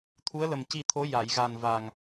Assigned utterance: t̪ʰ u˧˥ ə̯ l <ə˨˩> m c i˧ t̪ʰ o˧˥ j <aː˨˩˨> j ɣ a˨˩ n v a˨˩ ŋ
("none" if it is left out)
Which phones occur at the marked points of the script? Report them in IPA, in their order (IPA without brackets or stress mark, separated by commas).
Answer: ə˨˩, a˨˩˨